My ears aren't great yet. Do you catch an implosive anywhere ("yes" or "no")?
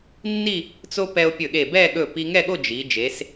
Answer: yes